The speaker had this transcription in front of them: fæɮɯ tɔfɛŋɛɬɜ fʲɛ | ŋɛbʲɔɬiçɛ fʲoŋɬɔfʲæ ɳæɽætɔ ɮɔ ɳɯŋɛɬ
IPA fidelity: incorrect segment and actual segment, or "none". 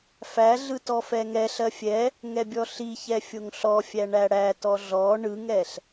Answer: none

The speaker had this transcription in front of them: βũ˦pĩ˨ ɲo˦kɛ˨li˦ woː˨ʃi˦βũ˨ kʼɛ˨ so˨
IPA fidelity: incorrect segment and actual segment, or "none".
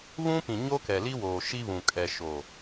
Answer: s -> ʃ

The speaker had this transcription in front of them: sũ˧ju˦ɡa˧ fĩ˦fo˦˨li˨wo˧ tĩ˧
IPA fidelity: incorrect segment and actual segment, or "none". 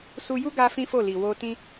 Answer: ũ˧ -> u˧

